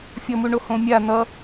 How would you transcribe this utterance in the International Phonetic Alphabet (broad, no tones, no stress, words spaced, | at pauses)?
fʲʌmuɳo hõmʲa n̪ʌ